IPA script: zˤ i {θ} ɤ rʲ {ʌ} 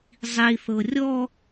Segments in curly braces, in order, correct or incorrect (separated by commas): correct, incorrect